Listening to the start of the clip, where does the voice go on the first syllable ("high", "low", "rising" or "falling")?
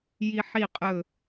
high